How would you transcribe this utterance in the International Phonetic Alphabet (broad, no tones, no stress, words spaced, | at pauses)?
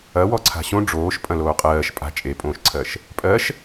ɐ wɔǀʰa̤ɕõ ɖ͡ʐoːʃ pʼɐ̃loːqʼɜːʃ pʼa̤ t͡ʃʼepʼõːʃǀʰɜʃ | pʼɜʃ